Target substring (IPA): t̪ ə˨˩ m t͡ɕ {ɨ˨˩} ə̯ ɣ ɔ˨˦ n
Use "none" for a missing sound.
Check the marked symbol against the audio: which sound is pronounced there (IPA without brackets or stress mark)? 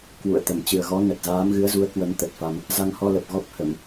ɨ˨˩